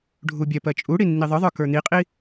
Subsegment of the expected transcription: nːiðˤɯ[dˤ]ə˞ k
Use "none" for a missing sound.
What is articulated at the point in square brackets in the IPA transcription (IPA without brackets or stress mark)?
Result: ðˤ